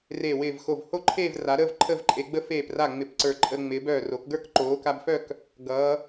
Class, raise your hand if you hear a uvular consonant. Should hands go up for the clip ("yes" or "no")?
no